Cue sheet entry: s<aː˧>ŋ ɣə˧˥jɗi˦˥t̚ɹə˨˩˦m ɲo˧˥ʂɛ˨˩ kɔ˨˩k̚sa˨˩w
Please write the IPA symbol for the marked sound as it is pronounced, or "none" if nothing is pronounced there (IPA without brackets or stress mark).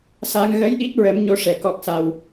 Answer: aː˧